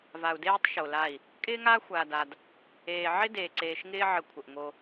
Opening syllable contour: low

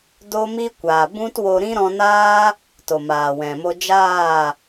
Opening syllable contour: high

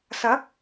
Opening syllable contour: rising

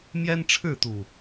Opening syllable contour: high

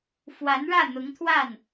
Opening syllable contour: rising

